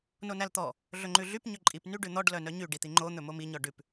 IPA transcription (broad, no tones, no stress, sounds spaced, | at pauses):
n o n æ l t̪ ɔ | ɮ ɵ ŋ͡ǃ ʉ ɮ y p ɲ ɵ ǃʼ i p n y ɖ ʉ n̪ ɔ ɖ l œ n œ ɲ y ɖ i t̪ i ŋ͡ǃ o n̪ ɵ m o m i ɲ ɔ ɖ ʉ p